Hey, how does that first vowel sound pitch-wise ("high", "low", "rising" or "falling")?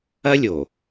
high